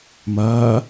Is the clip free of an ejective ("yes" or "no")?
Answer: yes